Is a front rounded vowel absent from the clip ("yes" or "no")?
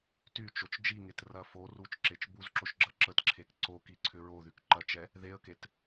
no